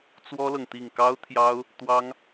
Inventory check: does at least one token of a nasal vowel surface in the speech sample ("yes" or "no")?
no